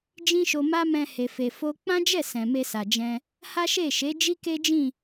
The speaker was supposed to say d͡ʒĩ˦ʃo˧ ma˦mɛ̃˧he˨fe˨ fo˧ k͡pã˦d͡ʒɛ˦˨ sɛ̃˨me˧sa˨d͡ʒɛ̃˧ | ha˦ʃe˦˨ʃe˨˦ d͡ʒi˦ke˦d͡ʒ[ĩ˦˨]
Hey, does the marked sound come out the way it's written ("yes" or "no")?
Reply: yes